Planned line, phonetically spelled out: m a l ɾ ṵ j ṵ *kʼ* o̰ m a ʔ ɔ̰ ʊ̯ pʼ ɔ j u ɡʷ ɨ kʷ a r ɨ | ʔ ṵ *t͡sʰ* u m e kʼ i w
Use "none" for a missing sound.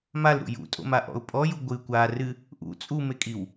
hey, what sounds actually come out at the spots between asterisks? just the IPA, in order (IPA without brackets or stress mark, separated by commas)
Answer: tʼ, t͡sʼ